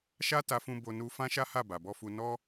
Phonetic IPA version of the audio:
ʃ a˦ t a˧ f ũ˧ b o˧ n u˧ f ã˦ ʃ a˦ h a˦˨ b a˨ b ɔ˧ f u˧ n ɔ˦

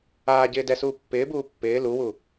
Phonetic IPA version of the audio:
aː ɟ ɪː d ɛ s uː pː ɪː b uː pː ɪː l u w u

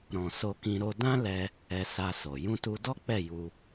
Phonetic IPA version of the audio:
ɾ ɔ̃˨ s o˧ k ĩ˧ ɾ o˧ d ã˦ l ɛ˧ | ɛ˧ s a˧ s o˨ j ũ˧ t u˧ d ɔ˦ k͡p ɛ˦˨ j u˧

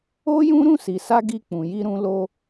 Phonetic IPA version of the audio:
o˦ j ũ˦ ɾ ũ˦˨ s i˨ s a˧ ɡ i˧ k͡p ũ˨ j i˧ ɾ ũ˧ l o˧

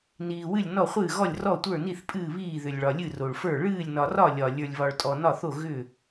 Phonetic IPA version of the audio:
n iː˩ w ɨ˧˩ lʲ n ɔ˧˩ χʷ ɨː˧˩ ɣ ɔ˧˩ lʲ r ɔ˧˩ tʷ ə˞˧˩ n i˧˩ θ pʼ ɨː˧˩ β iː˧˩ ð ʏ˩ lʲ ɭ ɒ˩ lʲ ɨ˧˩ r o˩ ɭ f ə˞˧˩ ɭ ɨː˧˩ lʲ n ɒ˩ r ɒ˧˩ lʲ ɒ˩ lʲ ə˞˩ lʲ β ɒ˩ ɭ tʼ ɔ˩ n ɒ˧˩ θ o˧˩ ɣ ʏ˧˩

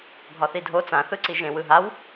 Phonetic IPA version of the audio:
ɡʱ ɒ θ i dʱ o t͡s ã θ ɯ ǀ i ʒ ẽ w ɯ ɦ a w

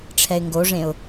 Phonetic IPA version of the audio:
ʈ͡ʂʰ ɛ ɪ̯ ŋ ɡ o ʐ ẽ ʊ̯

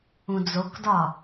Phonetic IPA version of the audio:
ũ d͡z o k d ɒ

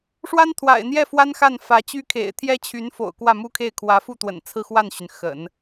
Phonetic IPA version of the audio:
ʂ w a˥ n t̪ʰ w a̰˨˩ ɪ̯ n̪ j ɛ˥˩ f w a˥ n x a˥˩ n f ä˧˥ t͡ɕ y˥ kʰ ḛ˨˩ ɪ̯ t̪ʰ j ɛ˥ t͡ɕʰ y˧˥ n f o̰˨˩ ʊ̯ k w ä˥˩ m u˥ kʰ e˥˩ ɪ̯ kʰ w ä˧˥ f u˥˩ t̪ w ə̰˨˩ n t͡sʰ ɹ̩˥˧ x w a˥˩ n ɕ y˩ n x ə̰˨˩˦ n

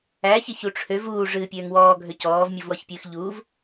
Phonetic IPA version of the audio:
æ ç ɪ ç u ʈ͡ʂʰ ø v uː ʐ ɨː pʲ øː ŋ w ɔː ɡʱ ø c ɔː v mʲ u v w ɔ ç pʲ ɨː x ʎ u v

